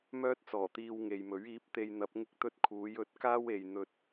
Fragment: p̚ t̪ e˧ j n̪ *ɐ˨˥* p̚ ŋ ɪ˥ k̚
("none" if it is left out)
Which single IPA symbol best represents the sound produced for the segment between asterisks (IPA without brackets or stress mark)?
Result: ɐ˨˥